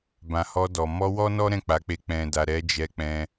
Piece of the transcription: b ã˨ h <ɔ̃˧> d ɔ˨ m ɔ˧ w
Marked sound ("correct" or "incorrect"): incorrect